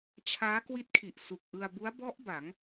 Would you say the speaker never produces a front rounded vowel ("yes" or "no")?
yes